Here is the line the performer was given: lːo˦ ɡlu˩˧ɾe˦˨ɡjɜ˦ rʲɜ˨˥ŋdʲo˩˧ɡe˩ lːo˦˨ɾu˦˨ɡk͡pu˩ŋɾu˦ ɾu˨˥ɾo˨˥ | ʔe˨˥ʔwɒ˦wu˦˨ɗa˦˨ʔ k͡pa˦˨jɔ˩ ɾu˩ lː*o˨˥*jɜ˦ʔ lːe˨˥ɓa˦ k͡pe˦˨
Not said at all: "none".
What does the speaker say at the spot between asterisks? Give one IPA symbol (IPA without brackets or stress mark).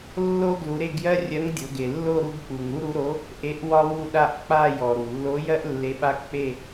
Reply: o˨˥